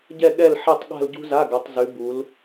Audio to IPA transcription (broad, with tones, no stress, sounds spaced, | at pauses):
ɟ ɛ˥˧ ɠ ɛ˥˧ l ħ ɛ˥˧ tˤ ɠ a̤˥˧ l ɟ ṳ˥ z a˧˥˧ ɡ ɐ˨˦ tˤ z ʉ˨˦ b u˨˦ l